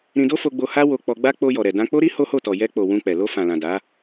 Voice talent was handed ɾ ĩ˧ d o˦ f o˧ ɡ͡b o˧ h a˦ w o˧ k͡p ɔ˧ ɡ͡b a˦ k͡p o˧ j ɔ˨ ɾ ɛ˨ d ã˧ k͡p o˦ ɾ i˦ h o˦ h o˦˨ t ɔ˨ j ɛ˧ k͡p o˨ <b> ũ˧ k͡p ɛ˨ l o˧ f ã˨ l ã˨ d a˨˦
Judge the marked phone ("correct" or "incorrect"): incorrect